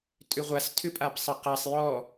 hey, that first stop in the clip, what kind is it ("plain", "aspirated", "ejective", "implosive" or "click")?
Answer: ejective